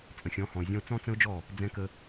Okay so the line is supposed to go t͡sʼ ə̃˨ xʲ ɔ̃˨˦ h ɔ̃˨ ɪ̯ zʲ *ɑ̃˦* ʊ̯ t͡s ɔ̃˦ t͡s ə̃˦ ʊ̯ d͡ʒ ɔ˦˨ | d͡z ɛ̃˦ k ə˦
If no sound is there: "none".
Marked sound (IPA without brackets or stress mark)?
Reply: ɔ̃˦